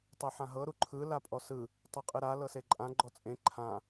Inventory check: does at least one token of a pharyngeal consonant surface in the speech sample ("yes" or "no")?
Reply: yes